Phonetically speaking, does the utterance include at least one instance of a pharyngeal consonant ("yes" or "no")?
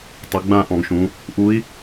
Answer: no